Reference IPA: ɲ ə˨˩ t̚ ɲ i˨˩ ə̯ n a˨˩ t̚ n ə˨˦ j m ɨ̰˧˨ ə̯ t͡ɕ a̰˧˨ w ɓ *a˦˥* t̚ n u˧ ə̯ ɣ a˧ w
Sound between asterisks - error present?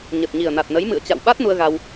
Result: no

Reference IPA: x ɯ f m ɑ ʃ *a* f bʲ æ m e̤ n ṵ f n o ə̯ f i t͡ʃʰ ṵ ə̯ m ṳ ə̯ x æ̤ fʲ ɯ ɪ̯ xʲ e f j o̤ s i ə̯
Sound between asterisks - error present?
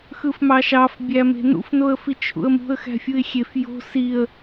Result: yes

